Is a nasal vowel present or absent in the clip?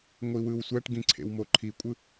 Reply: present